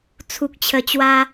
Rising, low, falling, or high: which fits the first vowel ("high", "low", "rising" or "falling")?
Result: low